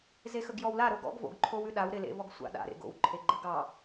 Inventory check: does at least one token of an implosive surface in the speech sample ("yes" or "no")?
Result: yes